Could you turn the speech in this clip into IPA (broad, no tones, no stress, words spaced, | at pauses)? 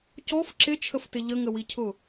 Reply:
cɔf ǁɪt͡ʃʰəftɪ ʎəŋəwicʰʊ